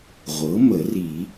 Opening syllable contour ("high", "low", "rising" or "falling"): rising